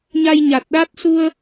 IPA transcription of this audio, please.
ɲ a˧ j ɲ a˨˩ t̚ ɗ a˦˥ t̚ s u˧ ə̯

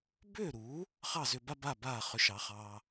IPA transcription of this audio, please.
b ʏː˥˩ ɾ uː˩˥ | χ ɑ˥˩ z ʏ˧ b a˥ b a˥˩ b aː˥˩ χ ʏ˧ ʃ ɑ˩˥ χ ɑː˧

